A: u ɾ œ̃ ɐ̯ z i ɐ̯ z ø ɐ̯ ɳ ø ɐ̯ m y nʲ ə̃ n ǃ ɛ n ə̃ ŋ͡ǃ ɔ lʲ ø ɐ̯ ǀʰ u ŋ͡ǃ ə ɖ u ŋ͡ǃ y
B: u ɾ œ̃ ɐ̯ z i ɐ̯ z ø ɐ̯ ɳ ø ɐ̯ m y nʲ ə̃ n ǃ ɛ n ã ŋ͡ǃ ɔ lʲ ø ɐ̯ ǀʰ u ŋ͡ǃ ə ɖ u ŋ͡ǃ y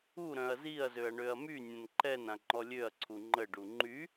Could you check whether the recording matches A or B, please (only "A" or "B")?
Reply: B